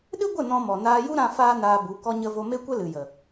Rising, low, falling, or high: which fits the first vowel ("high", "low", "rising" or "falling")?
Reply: high